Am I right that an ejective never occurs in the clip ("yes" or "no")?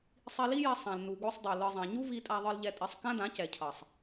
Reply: no